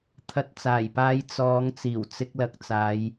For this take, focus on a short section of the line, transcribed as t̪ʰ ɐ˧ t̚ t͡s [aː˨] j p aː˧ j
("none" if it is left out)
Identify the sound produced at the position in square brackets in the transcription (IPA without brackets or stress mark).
aː˨˩